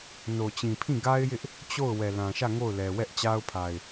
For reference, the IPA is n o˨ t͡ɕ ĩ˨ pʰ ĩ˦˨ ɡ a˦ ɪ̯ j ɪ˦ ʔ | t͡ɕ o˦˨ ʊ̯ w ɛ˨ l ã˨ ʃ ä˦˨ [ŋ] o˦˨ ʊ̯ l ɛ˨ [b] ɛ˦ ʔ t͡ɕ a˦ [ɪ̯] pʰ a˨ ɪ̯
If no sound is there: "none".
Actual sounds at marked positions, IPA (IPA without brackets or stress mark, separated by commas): ŋ, w, ʊ̯